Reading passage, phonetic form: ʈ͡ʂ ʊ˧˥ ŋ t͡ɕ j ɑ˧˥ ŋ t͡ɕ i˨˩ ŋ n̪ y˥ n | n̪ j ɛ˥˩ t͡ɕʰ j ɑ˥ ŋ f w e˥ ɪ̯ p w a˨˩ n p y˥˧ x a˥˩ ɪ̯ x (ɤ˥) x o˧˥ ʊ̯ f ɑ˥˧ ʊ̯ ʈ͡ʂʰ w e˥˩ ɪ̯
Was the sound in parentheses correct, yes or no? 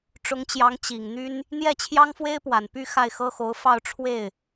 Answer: yes